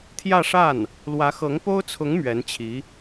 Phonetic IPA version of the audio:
t̪ʰjä˥˧ʂa˥˩n | lwä˧˥xɤ˧˥ŋpo˥ʊ̯t͡sʰʊ˧˥ŋ mɥɛ˧˥nt͡ɕʰi˧˥

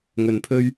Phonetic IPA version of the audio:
ŋɵ˨npʰɵ˧ɥ

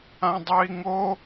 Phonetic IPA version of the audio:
ãdˤœi̯ŋo

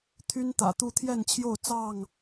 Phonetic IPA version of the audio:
t̪ʰy˦nt̪ä̰˨˩ t̪u˥˨ t̪ʰjɛ˥˨nt͡ɕʰjo˥˨ʊ̯ t͡sɑ˥˨ŋ

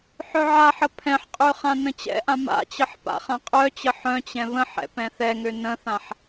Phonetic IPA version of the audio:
ħœʕaħə pʰɛ̃ħqʼø χãnə̃t͡ɕɛ̰ʔã ma̰t͡ɕəħ pa̰χãqʼœt͡ɕə ħœ̃t͡ɕɛ̃ βə̃ħɛ̰ pɛ̃θɛŋø nə̃θãħ

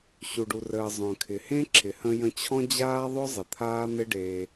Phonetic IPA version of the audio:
ɕu˨ɖu˨rəː˨ zˤœ̃˨kʰɪ˨ hẽ˦ǁʰɪ˨hə̃˧ jə̃˧t͡ɕʰɔ̃˦d͡ʑaː˦ ðˤʊ˦zˤɪ˨ t̪ʰaː˦n̪ɪ˦ ɖeː˧

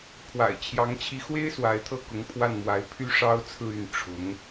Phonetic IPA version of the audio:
pʰwa̰˨˩ɪ̯ t͡ɕʰjɑ˧˥ŋt͡ɕʰi˧˥xwe˥ɪ̯ swa˧˥ɪ̯t̪ʰɤ˥˩kʊ˧˥ŋ pʰwa˥˩nmwa˧˥ɪ̯ pʰy˥ʂɑ˥ʊ̯t͡sʰɹ̩˥˧y˥˩n ʈ͡ʂʰʊ˧˥ŋ

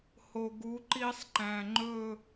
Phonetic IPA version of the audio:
ho˨ɡu˨˦ ǃi˦sˤǃæ̃˨ŋ͡ǃɵ˦˨

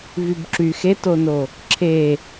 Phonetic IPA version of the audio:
vybǁyx etono | ǁʰe

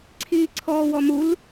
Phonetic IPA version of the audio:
ǀʰiːǀʰɔːwɔmul

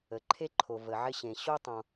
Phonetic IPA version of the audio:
ə˩ǃʰe˥ǃʰo˩ və˩ʕɪ˥ ɕẽ˩ ɕo˥tˤõ˩

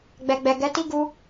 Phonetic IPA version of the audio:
ɡ͡bɛ˨ɡ͡bɛ˨ ɡɛ˨˦ti˦ ɡu˧

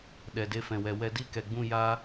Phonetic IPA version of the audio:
ɗɛ˨de˧fɛ̃˨wɛ˨ wɛ˧di˦kɛ˨ɡ͡bũ˦˨ ja˦

